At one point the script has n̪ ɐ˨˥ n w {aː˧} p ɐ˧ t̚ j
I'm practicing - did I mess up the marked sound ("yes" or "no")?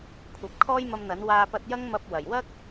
no